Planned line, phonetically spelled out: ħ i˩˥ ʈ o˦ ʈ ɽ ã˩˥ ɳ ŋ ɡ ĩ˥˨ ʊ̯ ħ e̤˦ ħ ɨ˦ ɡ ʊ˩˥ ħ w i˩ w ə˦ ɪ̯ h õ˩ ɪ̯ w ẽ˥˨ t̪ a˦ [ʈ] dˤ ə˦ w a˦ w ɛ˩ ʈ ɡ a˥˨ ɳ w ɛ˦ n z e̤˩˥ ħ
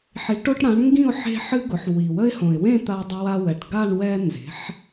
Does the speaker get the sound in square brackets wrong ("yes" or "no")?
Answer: yes